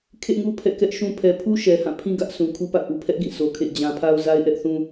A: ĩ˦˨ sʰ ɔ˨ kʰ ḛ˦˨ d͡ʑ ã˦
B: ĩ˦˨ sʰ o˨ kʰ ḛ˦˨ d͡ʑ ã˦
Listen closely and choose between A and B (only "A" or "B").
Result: B